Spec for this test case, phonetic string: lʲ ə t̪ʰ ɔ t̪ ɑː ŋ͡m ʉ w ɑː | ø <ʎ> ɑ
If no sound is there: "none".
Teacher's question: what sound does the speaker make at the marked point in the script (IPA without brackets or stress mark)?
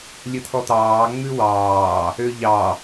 ʎ